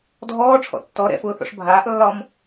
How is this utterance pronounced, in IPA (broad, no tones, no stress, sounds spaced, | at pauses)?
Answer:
dʱ ɔː ʈ͡ʂʰ ɔ̰ tː ɔ ɾ ɛ̰ f ʊː θ ɔ̰ ʂ bʱ aː ʔ lː ɒ m